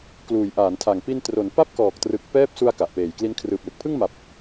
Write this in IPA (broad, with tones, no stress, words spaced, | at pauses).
kluː˩˦jʔaː˩˦ntʰa˨˩ŋ pi˧ntro˩˦n pa˥˩p̚kɔː˨˩k̚trɯ˨˩k̚ pɛː˦˥p̚su˧a̯ ka˨˩ʔpeː˨˩jkli˦˥n kʰrɯː˨˩p̚lɯ˨˩k̚pʰɯ˥˩ŋ ma˨˩p̚